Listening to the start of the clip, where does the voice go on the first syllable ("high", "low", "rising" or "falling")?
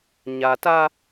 low